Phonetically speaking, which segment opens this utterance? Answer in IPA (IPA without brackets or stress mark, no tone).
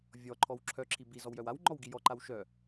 vʲ